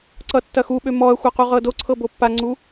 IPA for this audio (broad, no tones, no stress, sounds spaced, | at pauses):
ǀ ʌ tː ɐ x u ɓ ø m ɔ ɐ̯ xʷ ʌ q u ʁ ɤ d o ǀʰ ɤ b o pː a ŋ͡ǀ u